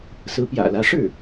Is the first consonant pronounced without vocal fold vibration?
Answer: yes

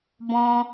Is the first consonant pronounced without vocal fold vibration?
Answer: no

